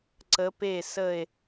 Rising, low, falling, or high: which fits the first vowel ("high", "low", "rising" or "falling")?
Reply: rising